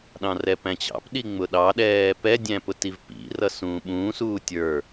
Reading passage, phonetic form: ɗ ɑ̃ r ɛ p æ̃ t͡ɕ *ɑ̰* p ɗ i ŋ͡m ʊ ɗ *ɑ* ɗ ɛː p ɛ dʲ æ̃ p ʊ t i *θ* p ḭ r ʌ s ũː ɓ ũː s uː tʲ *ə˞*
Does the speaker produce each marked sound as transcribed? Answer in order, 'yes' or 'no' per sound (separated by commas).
yes, yes, no, yes